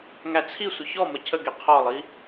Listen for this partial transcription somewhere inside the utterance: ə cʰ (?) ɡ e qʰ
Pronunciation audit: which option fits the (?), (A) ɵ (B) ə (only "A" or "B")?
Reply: B